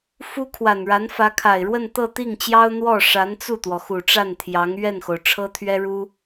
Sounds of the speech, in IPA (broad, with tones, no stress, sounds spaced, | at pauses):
f u˥ kʰ w a˨˩ n ɻ a˧˥ n f ä˧˥ kʰ a˨˩ ɪ̯ ɻ w ə˥˧ n t̪ ɤ˥˧ t̪ i˥˩ ŋ t͡ɕ j ɑ˥ ʊ̯ n̪ w ɔ˥˩ ʂ a˧˥ n t͡s u˥˩ t̪ w ɔ˩ x u˨˩ ʈ͡ʂ a˥˩ n t̪ʰ j ɑ˧˥ ŋ ɥ ɛ˥˩ n x o˩ ʊ̯ ʈ͡ʂʰ ɤ˥ t̪ʰ ɥ ɛ˥ ɻ u˥